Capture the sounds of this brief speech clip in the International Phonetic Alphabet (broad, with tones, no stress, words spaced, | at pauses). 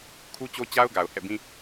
kʰu˦t͡ɕo˦t͡ɕa˦ʊ̯ɡa˨ʊ̯ hɛ̰˦˨bĩ˦